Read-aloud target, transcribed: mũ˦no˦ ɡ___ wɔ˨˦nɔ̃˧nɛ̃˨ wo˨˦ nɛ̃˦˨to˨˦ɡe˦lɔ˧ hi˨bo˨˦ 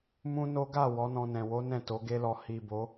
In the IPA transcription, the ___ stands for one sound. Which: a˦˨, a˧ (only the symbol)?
a˦˨